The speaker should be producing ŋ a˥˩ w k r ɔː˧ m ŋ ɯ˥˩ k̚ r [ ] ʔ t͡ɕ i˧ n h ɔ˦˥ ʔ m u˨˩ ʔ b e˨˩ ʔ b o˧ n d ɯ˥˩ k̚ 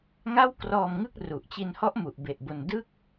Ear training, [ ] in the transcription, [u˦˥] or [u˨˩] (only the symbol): u˨˩